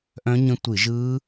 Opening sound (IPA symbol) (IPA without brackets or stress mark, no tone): ʔ